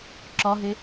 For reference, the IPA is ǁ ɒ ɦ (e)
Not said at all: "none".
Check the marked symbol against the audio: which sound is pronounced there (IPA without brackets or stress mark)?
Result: e